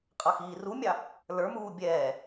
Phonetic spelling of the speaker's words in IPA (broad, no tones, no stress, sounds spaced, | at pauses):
qʼ ʌ x iː r u mʲ ɑ | l ə˞ m uː bʲ ɛː